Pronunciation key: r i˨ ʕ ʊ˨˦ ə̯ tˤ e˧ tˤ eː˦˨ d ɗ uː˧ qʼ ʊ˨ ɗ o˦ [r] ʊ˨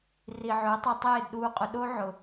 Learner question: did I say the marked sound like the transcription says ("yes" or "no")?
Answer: no